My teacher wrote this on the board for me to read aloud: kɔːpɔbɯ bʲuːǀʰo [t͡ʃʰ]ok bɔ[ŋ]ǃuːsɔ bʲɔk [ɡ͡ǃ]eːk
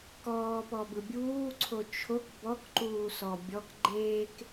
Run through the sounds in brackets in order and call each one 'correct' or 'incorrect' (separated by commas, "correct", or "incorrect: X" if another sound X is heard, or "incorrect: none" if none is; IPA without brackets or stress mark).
correct, incorrect: k, correct